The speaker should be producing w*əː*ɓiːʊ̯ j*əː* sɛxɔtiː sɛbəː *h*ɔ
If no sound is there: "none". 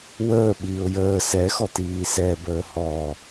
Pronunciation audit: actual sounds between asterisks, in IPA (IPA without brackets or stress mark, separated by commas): əː, əː, h